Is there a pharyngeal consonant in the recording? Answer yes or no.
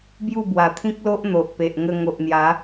no